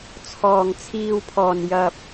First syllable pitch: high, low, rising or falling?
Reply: low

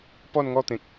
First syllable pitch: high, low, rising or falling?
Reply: falling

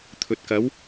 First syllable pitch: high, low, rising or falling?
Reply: low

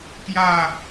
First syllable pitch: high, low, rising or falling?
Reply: falling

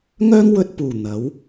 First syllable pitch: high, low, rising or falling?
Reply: high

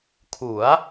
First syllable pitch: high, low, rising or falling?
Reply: rising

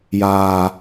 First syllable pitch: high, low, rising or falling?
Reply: low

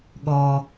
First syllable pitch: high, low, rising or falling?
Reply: low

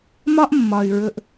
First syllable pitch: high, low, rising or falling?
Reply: high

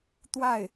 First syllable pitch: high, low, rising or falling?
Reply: falling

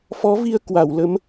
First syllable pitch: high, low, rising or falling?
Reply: rising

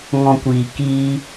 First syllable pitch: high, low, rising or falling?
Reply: low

